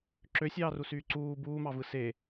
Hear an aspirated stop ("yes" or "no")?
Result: no